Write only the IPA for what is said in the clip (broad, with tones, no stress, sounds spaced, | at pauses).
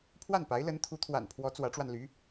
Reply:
pʰ w a˥˩ n p a˧˥ ɪ̯ l ə˧˥ n t̪ʰ u˧˥ t̪ʰ w a̰˨˩ n pʰ w ɔ˧˥ t͡s w ä˧˥ ʈ͡ʂ w a˧ n l y˧˥